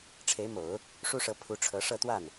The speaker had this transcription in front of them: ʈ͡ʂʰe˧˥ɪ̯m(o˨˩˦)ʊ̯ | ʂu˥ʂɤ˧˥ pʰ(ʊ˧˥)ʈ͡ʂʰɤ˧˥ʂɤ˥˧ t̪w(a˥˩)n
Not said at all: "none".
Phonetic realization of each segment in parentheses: o˨˩˦, u˧˥, a˥˩

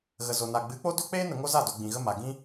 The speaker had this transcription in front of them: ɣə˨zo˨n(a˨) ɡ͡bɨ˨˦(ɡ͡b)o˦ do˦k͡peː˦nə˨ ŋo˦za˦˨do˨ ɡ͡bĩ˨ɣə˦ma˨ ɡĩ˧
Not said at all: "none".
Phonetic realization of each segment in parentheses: a˨, k͡p

